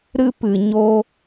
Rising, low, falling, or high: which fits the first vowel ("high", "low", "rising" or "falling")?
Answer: high